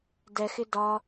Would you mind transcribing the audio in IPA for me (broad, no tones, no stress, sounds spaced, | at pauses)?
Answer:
d ɛ x ɪ d ɒ